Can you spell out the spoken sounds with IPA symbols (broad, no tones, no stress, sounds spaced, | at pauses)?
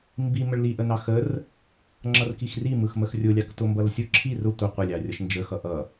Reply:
m b i m ə ɭ l i ʔ ə n ɑ x ə r | ŋ͡ǁ ʌ r k i x r i m ɯ x m ə x rʲ ʊ lʲ ɑ k t ʊ m b ʌ l sʲ ʊ ǁʰ i r ʊ tʷ ə qʷ ə lʲ ɑ rʲ ʌ ʃ n d͡ʒ ə x ʌ ʔ ʌ